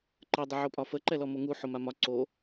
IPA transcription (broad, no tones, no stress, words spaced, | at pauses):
ǃə dˤɪʕopʼɒfə ǃɛlɔmoŋu ħomamɒ ǀo